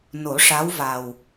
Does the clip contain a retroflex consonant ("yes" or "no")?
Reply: yes